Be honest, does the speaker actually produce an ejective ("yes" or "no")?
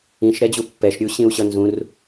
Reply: no